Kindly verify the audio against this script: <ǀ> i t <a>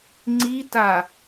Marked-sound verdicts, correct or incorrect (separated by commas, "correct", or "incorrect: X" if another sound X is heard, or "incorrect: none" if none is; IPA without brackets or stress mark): incorrect: ŋ͡ǀ, correct